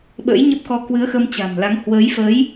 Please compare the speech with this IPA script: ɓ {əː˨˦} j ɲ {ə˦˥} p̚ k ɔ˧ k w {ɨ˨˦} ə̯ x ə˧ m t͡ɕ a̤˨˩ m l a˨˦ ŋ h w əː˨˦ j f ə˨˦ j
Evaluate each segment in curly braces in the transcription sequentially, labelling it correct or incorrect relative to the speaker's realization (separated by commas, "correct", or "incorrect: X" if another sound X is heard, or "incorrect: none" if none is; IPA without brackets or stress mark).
incorrect: ə̰ː˧˥, correct, correct